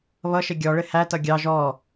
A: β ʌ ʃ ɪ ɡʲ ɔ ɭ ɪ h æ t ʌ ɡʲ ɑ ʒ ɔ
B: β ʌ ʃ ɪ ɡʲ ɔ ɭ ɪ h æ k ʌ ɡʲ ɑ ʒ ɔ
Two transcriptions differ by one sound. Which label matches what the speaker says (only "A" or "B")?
A